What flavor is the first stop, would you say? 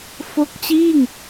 plain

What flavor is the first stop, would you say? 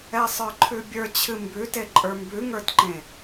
click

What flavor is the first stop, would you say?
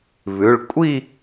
ejective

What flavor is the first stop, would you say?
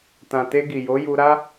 plain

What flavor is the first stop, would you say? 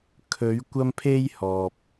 aspirated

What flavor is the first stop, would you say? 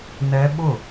implosive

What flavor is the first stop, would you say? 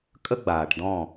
ejective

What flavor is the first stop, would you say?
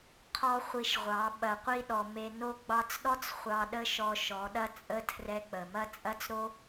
aspirated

